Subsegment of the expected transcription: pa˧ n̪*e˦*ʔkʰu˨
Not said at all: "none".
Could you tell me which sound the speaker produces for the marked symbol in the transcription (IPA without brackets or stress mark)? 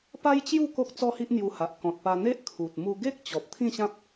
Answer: e˦